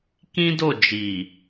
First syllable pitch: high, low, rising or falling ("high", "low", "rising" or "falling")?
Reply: high